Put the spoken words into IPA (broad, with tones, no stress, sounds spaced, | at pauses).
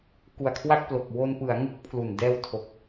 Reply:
k u˨˩ a̯ kʰ w a˥˩ k̚ p l o˨˩ k̚ w o˧ n p ɯ˩˦ a̯ ŋ u˦˥ k̚ pʰ l u˨˩ n d ɛː˧ w tʰ o˨˩ k̚